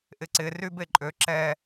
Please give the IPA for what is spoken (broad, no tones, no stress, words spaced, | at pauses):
ʔɪǀɪ rybeǃʼø ǁɛ